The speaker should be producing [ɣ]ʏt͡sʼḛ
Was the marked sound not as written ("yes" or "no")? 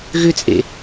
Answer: no